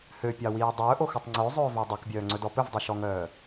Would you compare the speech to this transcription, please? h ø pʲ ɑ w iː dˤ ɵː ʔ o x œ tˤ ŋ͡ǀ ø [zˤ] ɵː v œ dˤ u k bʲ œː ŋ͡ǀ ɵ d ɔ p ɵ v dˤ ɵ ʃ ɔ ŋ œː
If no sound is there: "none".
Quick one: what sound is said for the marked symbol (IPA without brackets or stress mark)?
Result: zˤ